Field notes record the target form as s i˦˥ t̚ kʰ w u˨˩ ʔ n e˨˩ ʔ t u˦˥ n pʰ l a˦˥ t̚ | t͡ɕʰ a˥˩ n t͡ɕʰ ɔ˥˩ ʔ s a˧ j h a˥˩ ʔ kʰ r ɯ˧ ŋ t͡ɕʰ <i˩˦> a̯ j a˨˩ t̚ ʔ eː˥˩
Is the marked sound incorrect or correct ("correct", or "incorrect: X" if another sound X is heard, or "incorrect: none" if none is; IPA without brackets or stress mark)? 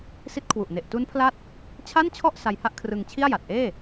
incorrect: i˥˩